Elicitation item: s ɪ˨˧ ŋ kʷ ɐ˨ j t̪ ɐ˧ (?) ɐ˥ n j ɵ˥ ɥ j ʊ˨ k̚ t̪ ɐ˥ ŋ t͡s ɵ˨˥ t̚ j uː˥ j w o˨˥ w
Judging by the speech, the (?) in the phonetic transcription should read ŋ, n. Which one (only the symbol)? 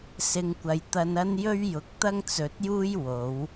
n